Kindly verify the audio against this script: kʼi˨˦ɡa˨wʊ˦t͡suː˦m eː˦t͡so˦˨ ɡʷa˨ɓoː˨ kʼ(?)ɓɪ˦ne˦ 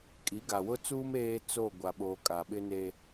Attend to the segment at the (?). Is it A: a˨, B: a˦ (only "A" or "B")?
A